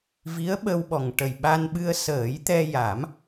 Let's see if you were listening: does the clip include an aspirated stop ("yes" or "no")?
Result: no